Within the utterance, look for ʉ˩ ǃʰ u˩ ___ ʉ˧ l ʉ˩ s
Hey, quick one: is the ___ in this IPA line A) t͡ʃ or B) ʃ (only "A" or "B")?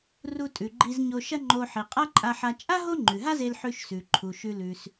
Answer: B